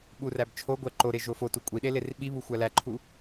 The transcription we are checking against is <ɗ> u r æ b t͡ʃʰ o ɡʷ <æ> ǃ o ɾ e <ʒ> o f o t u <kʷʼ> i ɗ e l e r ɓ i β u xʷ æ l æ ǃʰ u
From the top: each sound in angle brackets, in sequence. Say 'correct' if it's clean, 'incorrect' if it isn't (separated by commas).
incorrect, correct, correct, correct